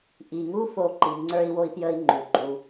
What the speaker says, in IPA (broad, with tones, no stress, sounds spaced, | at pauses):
ʔ i˩ ŋ u˦ f o˨ ǃ i˩ ŋ͡ǀ ə˞˦ i̯ w o˦ i̯ p j ə˦ i̯ ŋ͡ǃ u˩ ɡ͡ǃ u˨